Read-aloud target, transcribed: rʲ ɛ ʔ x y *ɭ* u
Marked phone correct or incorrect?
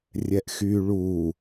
correct